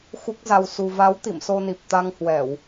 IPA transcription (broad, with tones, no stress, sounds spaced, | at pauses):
x u˦˥ k̚ z a˧ w s u˧ v a˨˦ w t̪ ḭ˧˨ m s o˧ n i˨˩ p̚ t̪ a˧ ŋ h w ɛ˧˩˨ w